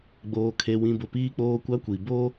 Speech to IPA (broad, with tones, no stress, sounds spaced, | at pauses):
ɡ͡b oː˨ kʰ e˨ w ĩ˨ b ʊ˨ p iː˦ k͡p oː˦ kʷ a˦ kʷ i˨ b o˦